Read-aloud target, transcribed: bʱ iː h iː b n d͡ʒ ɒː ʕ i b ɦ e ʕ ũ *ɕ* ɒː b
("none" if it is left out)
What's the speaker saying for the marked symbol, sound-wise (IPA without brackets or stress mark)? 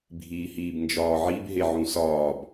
s